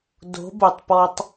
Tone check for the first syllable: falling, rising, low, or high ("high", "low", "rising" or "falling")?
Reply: rising